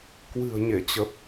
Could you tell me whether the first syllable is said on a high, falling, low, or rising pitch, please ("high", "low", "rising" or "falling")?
low